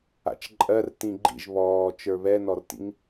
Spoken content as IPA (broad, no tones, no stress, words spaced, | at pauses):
a̰t͡ʃǃʼɜr tĩɡ͡ǃḭʒ βɔː t͡ʃə˞βɛnɔrtḭŋ